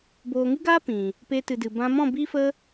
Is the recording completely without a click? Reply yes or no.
yes